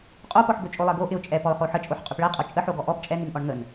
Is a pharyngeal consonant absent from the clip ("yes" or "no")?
no